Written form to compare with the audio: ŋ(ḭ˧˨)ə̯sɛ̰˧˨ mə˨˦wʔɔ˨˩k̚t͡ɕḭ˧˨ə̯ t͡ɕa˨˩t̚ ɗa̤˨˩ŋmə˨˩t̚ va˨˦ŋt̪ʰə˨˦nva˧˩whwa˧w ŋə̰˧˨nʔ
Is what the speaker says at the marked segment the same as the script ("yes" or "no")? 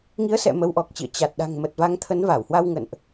no